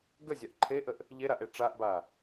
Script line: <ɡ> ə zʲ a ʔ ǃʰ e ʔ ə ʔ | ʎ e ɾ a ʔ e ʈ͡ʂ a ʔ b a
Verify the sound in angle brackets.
correct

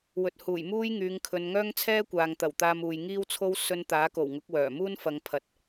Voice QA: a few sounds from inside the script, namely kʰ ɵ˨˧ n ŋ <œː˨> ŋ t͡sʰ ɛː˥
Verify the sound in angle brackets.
incorrect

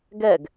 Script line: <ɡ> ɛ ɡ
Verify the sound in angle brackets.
correct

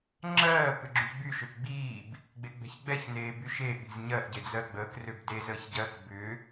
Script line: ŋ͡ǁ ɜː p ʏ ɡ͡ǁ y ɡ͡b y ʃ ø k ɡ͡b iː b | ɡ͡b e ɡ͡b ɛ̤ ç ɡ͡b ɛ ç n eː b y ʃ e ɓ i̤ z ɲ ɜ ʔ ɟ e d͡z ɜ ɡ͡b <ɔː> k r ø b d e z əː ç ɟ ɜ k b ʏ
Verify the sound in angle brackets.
incorrect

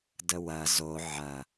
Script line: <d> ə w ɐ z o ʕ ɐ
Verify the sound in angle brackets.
correct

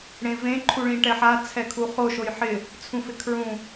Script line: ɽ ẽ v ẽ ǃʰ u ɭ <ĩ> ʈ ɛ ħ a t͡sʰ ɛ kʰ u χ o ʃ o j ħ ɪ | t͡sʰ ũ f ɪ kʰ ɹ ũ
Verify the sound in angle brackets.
correct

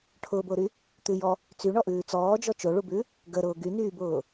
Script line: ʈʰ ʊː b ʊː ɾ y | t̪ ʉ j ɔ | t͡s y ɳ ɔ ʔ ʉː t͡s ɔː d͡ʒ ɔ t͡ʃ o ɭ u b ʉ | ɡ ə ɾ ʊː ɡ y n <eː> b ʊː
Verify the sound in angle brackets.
incorrect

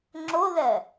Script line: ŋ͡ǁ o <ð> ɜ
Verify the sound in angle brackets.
correct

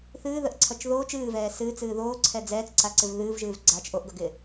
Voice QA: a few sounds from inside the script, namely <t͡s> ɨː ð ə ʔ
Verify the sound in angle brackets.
incorrect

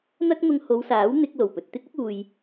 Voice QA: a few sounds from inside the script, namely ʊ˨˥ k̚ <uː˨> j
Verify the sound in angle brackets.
correct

